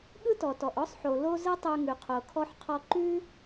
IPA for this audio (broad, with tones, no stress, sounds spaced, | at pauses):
ɠ ɯ˥ t ɔ˩ t ɔ˩ ʔ ɔ˥ sˤ ħ o˩ l o˥ z ɯ˥ tˤ ʉ˧ ŋ ʉ˩ qʰ o˩ kʰ ɔ˧ ħ qʰ ɔ˧ ǃ ʉ˥